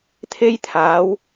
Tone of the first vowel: high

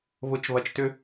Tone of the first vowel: rising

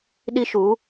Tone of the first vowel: high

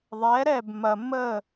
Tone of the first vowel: rising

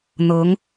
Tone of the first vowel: rising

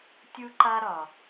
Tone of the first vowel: high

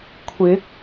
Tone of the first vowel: rising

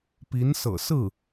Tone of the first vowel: rising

